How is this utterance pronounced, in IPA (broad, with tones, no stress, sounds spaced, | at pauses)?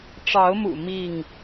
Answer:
ʈ͡ʂ ɑ˨˦ ʊ̯ m ṵ˨˩ m i˥˨ ŋ